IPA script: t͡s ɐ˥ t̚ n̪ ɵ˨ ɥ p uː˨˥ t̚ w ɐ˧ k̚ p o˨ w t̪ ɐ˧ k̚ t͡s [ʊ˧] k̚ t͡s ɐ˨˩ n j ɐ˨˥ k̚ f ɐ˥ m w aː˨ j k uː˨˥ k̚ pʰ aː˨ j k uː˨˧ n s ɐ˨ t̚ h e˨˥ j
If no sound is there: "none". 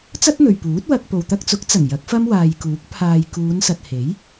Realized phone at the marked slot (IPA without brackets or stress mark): ʊ˨˥